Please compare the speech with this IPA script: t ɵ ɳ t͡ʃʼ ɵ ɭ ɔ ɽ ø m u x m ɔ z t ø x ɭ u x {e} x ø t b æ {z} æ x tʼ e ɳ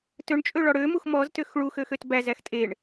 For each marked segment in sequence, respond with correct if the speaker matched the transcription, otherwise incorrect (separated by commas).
incorrect, correct